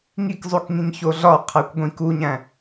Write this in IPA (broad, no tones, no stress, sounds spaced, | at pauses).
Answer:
ŋ i k zˤ u k ŋ ĩ ŋ ç o ɮ ɒ qʰ æ kʷ ɡʷ ĩ k u ɲ æ̃